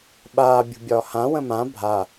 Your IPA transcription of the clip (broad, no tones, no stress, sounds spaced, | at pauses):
ɓ aː bʲ ṳ bʲ ɒː h ã w ə̃ m ã bʱ a